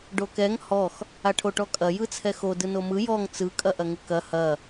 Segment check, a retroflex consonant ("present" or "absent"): present